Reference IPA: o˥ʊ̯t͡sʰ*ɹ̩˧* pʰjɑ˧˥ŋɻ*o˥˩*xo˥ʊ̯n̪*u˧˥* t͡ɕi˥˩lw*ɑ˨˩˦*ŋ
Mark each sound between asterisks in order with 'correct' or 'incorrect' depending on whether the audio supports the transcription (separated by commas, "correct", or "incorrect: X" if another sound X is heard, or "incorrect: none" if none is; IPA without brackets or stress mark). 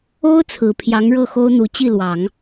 incorrect: ɹ̩˨˩, incorrect: ɤ˥˩, correct, correct